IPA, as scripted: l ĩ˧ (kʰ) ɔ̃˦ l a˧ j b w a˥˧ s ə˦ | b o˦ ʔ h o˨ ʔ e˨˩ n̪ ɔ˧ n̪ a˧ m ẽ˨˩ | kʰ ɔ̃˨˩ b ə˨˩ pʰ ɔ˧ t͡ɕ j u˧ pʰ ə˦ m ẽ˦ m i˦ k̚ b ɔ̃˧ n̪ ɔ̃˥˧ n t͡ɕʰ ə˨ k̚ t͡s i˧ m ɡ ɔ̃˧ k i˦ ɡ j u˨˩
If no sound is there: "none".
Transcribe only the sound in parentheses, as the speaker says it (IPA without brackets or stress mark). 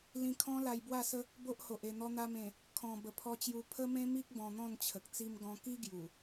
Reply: kʰ